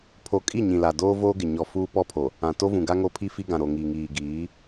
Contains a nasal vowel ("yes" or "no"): yes